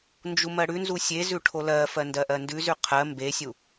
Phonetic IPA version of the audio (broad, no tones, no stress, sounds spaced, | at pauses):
n d͡ʒ u m ɜ ɽ ʉ n z u sʲ e z ʉ ʈʰ o l ɜ f ɜ n d ɜ ʔ ɜ n d ʉ z ʉ qʰ ɜ m b e sʲ u